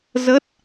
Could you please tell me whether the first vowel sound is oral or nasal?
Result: oral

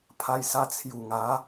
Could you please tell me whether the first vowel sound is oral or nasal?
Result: oral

